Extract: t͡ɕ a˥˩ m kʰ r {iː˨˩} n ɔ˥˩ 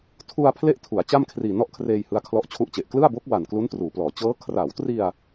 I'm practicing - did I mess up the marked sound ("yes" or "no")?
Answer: no